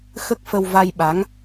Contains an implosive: yes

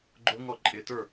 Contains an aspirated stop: no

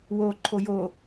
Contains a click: yes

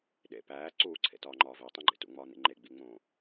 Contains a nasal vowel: yes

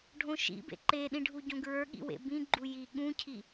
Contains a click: yes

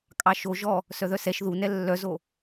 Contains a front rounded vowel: yes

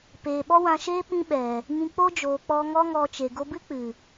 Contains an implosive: yes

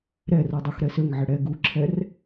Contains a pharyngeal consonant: yes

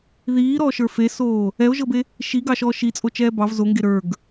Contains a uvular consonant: no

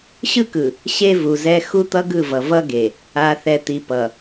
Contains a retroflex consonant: no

